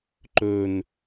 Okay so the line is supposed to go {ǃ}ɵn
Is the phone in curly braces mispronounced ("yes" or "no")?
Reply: no